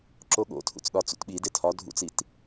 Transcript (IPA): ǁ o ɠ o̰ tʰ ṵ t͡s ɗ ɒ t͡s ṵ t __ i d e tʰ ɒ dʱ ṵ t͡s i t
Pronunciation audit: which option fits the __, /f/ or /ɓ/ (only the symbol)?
ɓ